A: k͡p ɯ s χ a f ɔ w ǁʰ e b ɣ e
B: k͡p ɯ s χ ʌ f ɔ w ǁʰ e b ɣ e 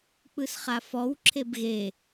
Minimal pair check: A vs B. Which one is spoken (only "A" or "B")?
A